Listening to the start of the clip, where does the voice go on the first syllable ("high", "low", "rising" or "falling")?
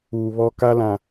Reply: low